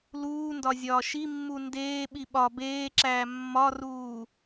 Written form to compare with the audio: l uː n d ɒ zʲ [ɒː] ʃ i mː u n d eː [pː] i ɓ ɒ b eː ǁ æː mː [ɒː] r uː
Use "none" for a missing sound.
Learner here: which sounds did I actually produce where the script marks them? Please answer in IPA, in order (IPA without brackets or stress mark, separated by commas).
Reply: ɒː, ɓ, ɒ